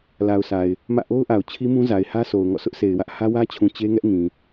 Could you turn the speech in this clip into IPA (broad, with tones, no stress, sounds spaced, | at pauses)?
l a˨ ʊ̯ s a˨ ɪ̯ | m ä̰˦˨ ʔ o˦ ʊ̯ ʔ a˨ ʊ̯ t͡ɕʰ i˦ m ũ˦ z a˨ ɪ̯ h ä˦ s o˨ ʊ̯ ŋ ɔ̰˦˨ s ʊ˦ ʔ sʰ e˨ ɪ̯ w ä˦ ʔ h ä˦ w ä˦ t͡ɕʰ ũ˨ t͡ɕ e˦ ŋ ɛ˦ ʔ ŋ ĩ˨